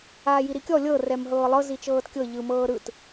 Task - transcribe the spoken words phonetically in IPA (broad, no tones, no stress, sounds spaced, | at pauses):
aː j i ɾ i kʲ ɔ lʲ ɤ r ɛ m ɦ ɤː lˠ ɤ z i t͡ʃ ɤː t kʲ ɤ ʎ ɯ m ɤː ɾ ɯ t